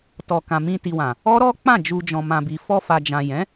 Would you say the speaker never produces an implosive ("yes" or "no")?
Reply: yes